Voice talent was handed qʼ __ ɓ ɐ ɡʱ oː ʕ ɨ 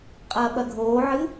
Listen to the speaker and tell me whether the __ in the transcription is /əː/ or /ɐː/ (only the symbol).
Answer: ɐː